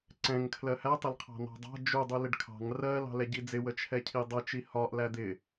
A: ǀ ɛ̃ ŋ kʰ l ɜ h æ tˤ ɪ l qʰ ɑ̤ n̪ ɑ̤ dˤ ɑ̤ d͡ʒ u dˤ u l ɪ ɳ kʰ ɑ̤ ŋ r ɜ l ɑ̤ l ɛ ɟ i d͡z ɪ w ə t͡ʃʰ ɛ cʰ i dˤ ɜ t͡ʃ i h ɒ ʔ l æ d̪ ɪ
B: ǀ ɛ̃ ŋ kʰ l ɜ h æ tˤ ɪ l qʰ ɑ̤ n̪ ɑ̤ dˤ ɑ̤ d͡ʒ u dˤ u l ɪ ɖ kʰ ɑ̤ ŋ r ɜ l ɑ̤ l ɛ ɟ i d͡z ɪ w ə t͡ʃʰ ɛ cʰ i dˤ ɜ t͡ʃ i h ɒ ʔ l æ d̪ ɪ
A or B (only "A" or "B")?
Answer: B